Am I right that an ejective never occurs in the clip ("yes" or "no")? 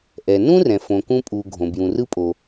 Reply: no